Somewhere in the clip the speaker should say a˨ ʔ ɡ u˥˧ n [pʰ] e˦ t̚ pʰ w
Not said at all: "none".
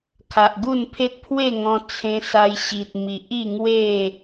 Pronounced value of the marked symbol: pʰ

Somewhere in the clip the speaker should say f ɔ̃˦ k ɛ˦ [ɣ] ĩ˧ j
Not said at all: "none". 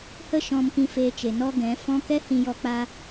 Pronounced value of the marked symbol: h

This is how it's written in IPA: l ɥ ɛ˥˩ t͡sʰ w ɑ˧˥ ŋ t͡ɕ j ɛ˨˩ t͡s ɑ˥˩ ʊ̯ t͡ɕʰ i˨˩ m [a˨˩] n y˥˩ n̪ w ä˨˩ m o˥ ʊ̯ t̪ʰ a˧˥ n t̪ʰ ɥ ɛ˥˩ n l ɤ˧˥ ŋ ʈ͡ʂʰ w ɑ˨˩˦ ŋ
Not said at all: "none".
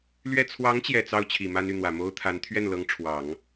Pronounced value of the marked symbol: a˥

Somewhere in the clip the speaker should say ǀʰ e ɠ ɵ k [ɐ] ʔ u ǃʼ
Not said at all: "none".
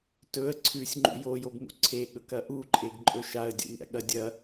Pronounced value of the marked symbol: ɐ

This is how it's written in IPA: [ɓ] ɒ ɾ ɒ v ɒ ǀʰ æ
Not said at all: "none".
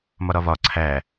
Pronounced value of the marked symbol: m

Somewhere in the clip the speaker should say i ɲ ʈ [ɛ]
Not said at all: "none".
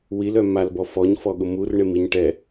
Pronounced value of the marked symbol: ɛ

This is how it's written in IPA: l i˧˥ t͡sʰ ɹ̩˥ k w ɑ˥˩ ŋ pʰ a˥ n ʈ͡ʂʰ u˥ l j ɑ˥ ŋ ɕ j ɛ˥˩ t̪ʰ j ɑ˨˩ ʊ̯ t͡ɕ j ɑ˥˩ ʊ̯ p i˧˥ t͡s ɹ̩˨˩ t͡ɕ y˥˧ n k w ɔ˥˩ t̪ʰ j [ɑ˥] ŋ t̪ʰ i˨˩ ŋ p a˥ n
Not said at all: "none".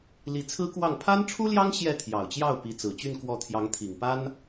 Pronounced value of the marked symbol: ɑ˧˥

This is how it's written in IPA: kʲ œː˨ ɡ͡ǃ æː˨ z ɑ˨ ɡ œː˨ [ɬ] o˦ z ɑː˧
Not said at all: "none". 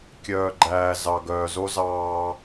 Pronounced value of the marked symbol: z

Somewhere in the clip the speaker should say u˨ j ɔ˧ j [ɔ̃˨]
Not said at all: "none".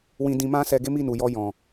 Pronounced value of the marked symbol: ɔ̃˨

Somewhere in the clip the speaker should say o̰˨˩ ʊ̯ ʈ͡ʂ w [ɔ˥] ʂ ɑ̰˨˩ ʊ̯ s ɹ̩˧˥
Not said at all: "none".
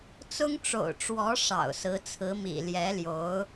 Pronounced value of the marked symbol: ɔ˧˥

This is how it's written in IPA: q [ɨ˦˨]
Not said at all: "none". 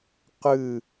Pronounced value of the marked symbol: ɨ˦˨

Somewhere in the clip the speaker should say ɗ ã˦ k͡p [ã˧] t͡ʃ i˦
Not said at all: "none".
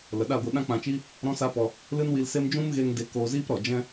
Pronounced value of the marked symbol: ã˧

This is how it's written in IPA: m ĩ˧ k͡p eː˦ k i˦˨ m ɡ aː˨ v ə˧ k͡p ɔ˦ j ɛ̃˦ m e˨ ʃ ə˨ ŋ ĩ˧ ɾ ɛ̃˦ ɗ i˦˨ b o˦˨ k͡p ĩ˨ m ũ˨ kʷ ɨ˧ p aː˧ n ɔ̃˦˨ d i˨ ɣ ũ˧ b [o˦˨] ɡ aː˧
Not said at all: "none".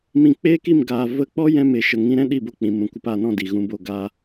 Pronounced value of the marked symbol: o˦˨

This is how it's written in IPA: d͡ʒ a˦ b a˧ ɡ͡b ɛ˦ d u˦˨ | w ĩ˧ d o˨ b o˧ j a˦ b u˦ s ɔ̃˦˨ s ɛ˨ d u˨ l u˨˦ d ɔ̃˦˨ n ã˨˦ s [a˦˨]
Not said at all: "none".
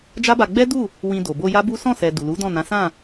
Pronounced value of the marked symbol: ã˦˨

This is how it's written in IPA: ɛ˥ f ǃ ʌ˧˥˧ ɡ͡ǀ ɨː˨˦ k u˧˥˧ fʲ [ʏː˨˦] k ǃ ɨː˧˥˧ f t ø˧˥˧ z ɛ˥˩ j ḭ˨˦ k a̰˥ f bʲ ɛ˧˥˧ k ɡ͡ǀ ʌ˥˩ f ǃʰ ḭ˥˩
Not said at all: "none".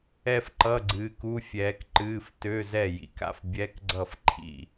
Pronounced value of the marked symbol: ɛː˨˦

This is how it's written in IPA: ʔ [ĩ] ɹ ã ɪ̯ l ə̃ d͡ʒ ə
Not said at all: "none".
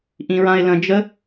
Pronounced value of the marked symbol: ĩ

